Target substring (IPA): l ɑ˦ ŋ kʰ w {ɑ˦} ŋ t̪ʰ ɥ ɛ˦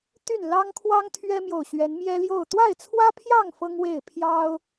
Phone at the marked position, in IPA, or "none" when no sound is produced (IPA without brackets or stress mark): ɑ˦